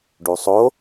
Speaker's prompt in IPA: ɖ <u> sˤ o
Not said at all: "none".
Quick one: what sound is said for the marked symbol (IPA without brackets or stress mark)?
u